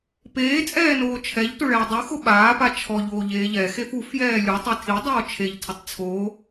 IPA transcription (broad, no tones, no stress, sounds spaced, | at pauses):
p eː t͡sʼ ɛː n oː t͡ʃʰ ɛ ʎ t ʊ ɭ ɛː dˤ u x ʊ ɓ aː p a t͡ʃʰ ɔ ʎ oː ʎ eː ʎ ɛ x e f u f j ɛː lʲ u tˤ e tʰ i dˤ oː t͡ʃʰ e ʎ tʰ ɪ tˤ t͡sʰ oː